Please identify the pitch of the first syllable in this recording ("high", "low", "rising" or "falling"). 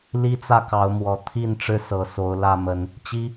high